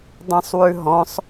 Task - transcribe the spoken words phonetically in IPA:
dˤɛ̃sˤwʉɦɔ̃sˤ

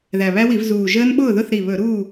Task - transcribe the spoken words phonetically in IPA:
ðæ˨˩βæ˦˥wi˧˩˧v zuː˨˩ʒəː˦˥nɓʊː˥˨ðʊ˥˨θ ɾi˨˩ βɵ˧˩˧ ɾuː˥˨

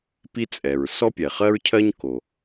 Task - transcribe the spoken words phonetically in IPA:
pi˥t͡sʼɛ˩ɹ sɔ˥pʲɛ˩χɜ˥ɹcʰɜ˥ɲ ko˩

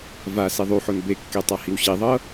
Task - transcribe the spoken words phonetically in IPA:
va siðˤuħon bekːe tˤahiwɕiðˤɤ

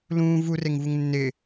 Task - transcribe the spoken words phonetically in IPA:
lũː vureŋvuŋ nːɪ

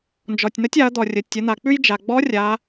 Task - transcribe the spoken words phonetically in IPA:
nd͡ʒɔ˩tʲnə˧˥tʲ a˩˧ɐ̯d̪ɔ˩ rʲə˩˧tʲə˩˧n̪a˩k͡pʉ˥j d͡ʒa˩ ɡ͡bɔ˧˥ rʲa˩˧

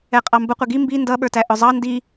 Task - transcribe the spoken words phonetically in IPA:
ɛqʼɑmbʊ qʷɪɡi mbi ndʌɓə˞tæ ʔʊzˤɑ ndi

